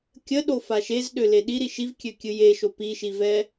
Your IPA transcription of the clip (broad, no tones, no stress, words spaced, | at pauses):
kʲəɗo faʃezɗø leɗi ɾiʃivkʲø kʲɨjeʃo piʃivɛ